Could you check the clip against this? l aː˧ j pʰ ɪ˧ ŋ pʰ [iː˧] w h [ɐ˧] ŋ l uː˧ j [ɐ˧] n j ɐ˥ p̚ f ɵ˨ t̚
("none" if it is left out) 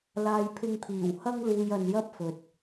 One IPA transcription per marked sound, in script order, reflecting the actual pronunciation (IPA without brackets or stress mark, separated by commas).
iː˨˩, ɐ˥, ɐ˧